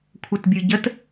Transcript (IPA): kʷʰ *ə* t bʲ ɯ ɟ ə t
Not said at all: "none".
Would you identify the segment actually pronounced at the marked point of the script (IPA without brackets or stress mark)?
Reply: ə